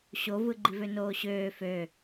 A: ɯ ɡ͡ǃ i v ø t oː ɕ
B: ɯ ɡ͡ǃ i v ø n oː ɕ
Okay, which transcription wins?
B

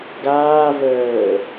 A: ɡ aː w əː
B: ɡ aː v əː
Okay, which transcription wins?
B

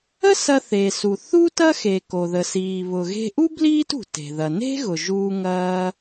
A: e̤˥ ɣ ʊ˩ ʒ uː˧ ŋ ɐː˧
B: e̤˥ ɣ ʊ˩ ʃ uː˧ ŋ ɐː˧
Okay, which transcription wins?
A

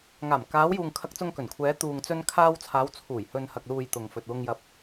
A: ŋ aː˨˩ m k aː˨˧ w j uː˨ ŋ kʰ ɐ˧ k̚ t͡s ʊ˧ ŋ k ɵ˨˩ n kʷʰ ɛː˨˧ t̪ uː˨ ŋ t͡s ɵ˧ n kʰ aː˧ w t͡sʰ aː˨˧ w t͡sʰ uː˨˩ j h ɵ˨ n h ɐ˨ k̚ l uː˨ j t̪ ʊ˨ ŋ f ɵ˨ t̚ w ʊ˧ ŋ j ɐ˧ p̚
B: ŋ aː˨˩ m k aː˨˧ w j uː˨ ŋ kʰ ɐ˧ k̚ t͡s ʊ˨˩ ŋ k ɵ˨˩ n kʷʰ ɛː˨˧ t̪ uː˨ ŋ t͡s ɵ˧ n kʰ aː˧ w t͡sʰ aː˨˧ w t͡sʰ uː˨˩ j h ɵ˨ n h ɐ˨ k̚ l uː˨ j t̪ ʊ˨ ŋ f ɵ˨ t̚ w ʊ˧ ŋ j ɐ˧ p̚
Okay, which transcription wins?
A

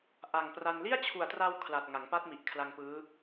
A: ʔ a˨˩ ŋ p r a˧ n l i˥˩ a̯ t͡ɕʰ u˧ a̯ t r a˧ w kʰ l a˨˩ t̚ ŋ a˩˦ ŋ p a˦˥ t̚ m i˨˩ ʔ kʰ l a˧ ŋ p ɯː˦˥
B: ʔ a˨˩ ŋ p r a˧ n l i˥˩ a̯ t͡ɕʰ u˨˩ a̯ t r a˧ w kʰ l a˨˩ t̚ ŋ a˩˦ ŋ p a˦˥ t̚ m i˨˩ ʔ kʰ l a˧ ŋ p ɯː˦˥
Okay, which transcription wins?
B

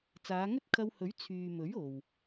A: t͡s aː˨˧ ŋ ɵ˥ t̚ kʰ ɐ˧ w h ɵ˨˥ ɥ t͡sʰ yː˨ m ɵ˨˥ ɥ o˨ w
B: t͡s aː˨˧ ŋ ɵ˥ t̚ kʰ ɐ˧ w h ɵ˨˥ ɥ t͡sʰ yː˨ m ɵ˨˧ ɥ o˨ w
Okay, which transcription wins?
A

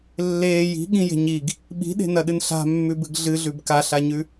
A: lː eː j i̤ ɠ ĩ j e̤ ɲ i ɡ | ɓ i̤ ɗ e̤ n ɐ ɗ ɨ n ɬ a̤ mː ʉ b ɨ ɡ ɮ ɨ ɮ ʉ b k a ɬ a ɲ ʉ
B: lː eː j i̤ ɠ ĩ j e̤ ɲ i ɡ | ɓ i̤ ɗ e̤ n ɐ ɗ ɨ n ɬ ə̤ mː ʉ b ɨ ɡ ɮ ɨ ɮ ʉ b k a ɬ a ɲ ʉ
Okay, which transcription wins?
A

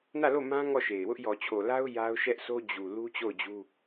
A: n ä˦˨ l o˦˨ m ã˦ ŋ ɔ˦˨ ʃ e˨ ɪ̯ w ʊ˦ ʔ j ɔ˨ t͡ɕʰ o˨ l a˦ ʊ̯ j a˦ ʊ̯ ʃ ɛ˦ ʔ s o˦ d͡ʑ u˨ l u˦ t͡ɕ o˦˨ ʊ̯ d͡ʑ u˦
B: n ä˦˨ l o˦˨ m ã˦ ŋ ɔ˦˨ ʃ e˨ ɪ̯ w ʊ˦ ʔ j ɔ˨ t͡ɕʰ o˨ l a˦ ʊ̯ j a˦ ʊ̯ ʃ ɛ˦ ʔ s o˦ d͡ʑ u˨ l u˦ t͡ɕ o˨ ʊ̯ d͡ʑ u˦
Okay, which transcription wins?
A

